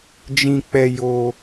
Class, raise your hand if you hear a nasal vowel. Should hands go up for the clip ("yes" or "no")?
yes